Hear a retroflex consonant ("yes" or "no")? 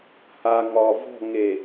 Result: no